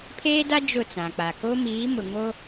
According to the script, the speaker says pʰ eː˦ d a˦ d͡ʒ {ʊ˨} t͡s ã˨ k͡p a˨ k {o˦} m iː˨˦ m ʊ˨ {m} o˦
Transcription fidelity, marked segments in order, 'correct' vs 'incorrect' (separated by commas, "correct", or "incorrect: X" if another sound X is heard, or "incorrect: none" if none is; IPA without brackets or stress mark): incorrect: ʊ˦˨, correct, incorrect: ŋ